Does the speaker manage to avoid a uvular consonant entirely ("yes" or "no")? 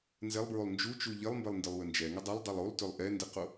no